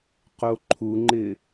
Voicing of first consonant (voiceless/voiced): voiceless